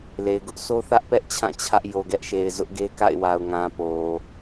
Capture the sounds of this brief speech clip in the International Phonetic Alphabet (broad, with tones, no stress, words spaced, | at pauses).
le˨ɪ̯ɡʊ˦ʔ sʰo˦θä˦ʔpɛ˦ʔ t͡ɕʰã˦˨ t͡ɕʰä˦ʔ jo˨ɡɛ˦ʔʃe˨ɪ̯ zʊ˦ʔɡe˦ka̰˦˨ɪ̯wa˨ʊ̯ ŋã˨ po˨